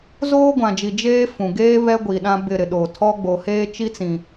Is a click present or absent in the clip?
absent